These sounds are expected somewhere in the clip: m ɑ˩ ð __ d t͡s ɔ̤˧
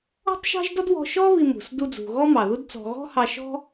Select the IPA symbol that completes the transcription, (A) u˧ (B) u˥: B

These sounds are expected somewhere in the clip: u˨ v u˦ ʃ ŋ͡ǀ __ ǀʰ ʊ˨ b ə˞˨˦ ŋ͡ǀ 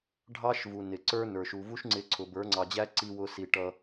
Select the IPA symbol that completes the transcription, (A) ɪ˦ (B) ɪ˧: B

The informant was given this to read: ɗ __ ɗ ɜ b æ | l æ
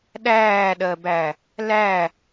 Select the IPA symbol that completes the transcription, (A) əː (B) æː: B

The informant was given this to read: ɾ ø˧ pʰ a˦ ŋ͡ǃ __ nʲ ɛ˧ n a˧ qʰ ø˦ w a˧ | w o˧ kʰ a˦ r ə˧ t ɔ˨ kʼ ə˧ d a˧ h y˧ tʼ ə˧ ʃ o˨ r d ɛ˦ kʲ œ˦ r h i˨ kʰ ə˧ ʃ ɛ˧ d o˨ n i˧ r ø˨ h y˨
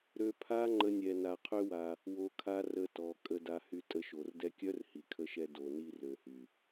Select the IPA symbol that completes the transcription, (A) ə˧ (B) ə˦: B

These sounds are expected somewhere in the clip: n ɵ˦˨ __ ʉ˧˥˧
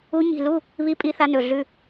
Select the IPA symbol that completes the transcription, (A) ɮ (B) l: A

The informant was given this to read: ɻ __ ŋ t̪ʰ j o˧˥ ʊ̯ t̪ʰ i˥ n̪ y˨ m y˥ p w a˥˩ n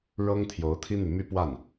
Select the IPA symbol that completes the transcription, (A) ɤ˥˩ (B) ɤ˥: B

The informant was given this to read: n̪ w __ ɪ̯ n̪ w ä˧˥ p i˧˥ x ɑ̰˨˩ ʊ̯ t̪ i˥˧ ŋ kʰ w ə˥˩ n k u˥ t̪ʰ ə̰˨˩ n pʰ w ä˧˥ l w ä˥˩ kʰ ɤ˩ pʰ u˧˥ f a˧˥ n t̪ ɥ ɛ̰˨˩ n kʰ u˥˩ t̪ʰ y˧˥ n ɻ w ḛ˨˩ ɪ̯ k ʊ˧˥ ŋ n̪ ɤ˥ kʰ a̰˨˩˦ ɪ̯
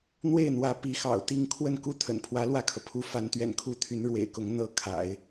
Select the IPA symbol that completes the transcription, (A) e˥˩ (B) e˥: A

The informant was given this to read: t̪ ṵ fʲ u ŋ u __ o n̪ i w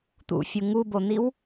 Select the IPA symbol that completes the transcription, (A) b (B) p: A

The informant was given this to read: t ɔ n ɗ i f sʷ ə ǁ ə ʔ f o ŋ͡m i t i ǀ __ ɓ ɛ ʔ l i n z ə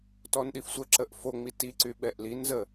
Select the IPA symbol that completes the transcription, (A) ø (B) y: B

